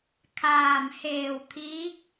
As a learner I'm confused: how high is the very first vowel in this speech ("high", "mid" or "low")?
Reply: low